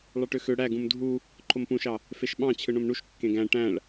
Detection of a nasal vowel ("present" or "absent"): present